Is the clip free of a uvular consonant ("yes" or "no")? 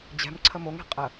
no